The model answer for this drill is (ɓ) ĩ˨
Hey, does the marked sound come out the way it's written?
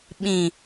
yes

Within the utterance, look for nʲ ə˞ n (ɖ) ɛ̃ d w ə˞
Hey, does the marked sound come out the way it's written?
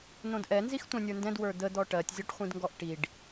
no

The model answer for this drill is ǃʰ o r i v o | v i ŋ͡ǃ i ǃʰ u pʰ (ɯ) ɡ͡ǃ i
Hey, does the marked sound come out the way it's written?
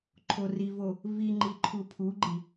no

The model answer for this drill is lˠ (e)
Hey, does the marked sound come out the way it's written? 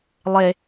yes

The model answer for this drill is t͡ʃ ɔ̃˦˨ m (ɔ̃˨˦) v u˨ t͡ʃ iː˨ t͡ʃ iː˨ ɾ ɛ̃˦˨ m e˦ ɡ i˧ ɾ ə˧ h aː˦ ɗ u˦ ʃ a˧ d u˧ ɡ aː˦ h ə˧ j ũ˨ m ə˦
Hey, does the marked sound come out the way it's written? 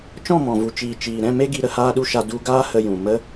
no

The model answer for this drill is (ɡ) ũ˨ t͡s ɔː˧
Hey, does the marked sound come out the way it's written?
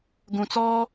yes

